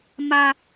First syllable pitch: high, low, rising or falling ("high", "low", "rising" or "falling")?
low